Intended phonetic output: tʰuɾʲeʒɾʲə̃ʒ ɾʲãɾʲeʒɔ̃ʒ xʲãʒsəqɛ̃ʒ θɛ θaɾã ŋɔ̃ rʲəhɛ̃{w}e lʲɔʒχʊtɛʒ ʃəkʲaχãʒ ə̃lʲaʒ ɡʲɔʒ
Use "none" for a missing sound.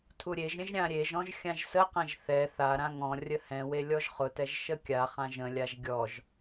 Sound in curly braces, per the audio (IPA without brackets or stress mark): w